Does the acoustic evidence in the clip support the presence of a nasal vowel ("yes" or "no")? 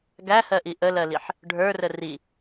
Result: no